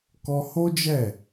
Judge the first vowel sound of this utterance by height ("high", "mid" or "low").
mid